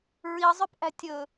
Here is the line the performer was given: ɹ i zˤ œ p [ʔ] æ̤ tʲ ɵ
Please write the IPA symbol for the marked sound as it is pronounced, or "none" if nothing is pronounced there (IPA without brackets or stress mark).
ʔ